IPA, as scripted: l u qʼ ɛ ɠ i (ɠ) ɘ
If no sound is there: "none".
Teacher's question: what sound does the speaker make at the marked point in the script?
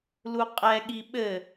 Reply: ɓ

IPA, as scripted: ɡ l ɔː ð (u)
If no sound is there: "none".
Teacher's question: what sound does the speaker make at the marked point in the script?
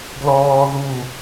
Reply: u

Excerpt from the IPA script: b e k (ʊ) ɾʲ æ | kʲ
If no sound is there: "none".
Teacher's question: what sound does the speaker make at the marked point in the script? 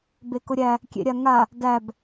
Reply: ʊ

